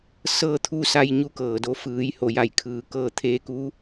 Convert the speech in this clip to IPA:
s ɤː˧ t̪ʰ u˧ s a˧ j ɲ u˧ k ɤː˩ d o˧ f ɯː˩˧ j h o˩ j a˧˩ j kʰ ɯː˩ k ɤː˧ t̪ʰ eː˧ k u˧˥

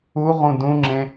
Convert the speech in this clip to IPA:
u ʁ ũ d ũ ŋ͡ǁ ẽ

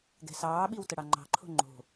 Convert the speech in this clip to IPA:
ɡ ɛ̤ s ɑː ɓ i w t ə ɽ ɑ ŋ͡ǃ ɑ̤ ǃʰ o̤ ŋ͡ǃ o̤

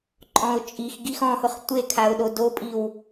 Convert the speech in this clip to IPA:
ǃʼ ɔ̃ ʊ̯ t͡ʃʼ i x ɡ i x ɔ̃ h ʊ χ tʷ e kʰ a ʊ̯ ɗ o d o pʼ i w

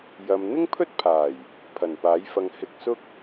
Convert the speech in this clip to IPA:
j ɐ˨ m n̪ ɪ˥ ŋ pʰ ɵ˥ t̚ pʰ aː˨˩ j | pʰ ɐ˨˩ n p aː˨˥ j f ɐ˧ ŋ h ɪ˧ k̚ s ʊ˥ k̚

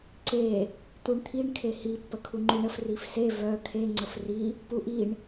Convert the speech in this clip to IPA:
ǀ e | t̪ u ɳ t̪ʰ i ɳ kʰ e h i pː ə kʰ u ŋ͡ǃ u ɳ ə f r i f s e v œ kʰ e ŋ͡ǀ ə f r i | p u ʔ i ɳ

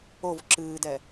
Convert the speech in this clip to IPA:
o v ǁ ɨː d ɛ

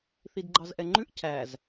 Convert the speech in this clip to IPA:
θ i d ɡ͡ǃ ɑ z ʔ ɛ ŋ͡ǃ ʉ ʔ cʰ æ z

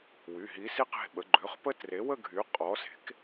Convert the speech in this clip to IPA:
w y˩˧˩ ɦ i˨˥ s i˥˧ q e̤˩˧˩ ɓ ə˩˧ ɡ͡ǃ ø˩˧˩ χ p ə˦˥ t r e˨˥ w ə˥˧ ɡʱ y˨˥ qʼ ɔ˨˥ s e̤˨˥ k

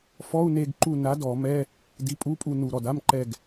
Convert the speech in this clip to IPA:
f ɔ˧˥˧ u̯ n e˦˨ ɡ ǃ u˦˨ n a˨˥ d ɔ˧˩˧ m ɛ˧˥˧ | d i˨˥ pʼ u˧˥˧ pʼ u˦˨ n u˨˩ ɾ ɔ˨˩ d a˧˥˧ m ǃ ɛ˦˨ ɡ

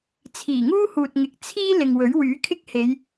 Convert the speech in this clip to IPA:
t͡sʰ iː˨˩ ŋ uː˥ h uː˨ t̚ ŋ ɪ˨˥ k̚ t͡sʰ iː˥ l ɪ˨ ŋ w ɵ˨˥ ɥ w yː˨˥ kʰ ɪ˥ k̚ h e˨˧ j

